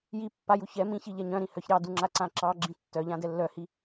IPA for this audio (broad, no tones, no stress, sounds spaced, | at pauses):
j i pː a j u ç ɛ m ĩ ç i ʎ ɛ ɲ œ̃ ɾ ĩ h œ ç ɾ ɑ d u ŋ͡ǁ a ǀ ã ǁ ɑ ɡ͡ǁ ĩ tː œ ʎ ã d ɛ lː œ h i